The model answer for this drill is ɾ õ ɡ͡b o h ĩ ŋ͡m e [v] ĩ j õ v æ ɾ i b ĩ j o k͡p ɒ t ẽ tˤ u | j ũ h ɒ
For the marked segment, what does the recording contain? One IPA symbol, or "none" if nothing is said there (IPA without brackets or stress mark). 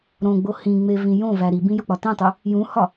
v